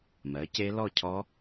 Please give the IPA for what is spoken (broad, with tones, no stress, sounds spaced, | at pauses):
m ɜ˨˦ c e˦˥ l ɔ˥˧ cʰ ɔ˦˥